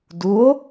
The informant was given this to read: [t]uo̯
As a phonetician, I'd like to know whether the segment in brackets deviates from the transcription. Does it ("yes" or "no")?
yes